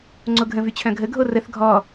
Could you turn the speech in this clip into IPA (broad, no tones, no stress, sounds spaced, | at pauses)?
ŋ͡ǀ o ɡʱ ə̃ v y t͡ɕʰ œ̃ ɡʱ ə ɡʱ o r ə θ ɡʱ ɔ